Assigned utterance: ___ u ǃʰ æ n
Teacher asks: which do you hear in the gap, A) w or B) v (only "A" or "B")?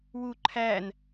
A